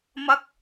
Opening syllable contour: high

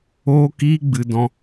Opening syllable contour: high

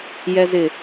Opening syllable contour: low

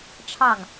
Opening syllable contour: falling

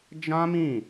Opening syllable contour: high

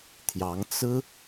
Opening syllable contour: rising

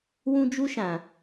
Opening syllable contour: high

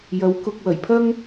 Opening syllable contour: rising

